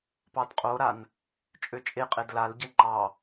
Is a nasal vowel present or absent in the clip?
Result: absent